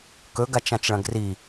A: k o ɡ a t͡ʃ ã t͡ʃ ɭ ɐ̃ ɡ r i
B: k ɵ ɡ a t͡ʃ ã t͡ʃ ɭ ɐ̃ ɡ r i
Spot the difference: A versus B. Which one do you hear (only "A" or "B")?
B